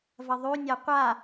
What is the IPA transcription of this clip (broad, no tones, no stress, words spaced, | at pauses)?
vɐðˤʉnʲa qʷa